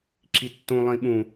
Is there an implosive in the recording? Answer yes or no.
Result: yes